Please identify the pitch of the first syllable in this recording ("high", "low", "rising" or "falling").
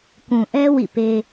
low